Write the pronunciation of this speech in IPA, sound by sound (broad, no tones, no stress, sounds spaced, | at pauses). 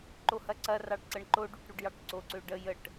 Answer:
ǃ o h ɐ ǀ ɐ r ɑ ɖ ǀ ə ɳ ǃ o ɖ u ʈ ɾ u ɖ j ɑ ʈ ǀ o ǀ ø ɖ ə j ə ʈ